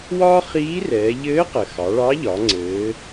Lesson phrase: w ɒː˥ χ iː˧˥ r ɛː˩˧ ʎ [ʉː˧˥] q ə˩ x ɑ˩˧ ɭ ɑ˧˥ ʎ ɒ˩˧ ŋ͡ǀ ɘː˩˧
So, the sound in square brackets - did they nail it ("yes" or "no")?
no